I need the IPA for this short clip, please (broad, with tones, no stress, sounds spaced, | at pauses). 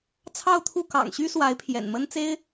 t͡sʰ ɑ˥˧ ʊ̯ t̪ʰ u˥˩ k ɑ̰˨˩ ŋ ɕ y˥ s w a˧˥ ɪ̯ pʰ j ɛ̰˨˩ n m ə˥ n t͡s e˥ ɪ̯